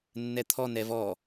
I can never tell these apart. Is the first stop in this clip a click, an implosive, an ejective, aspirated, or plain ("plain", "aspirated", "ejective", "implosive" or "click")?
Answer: aspirated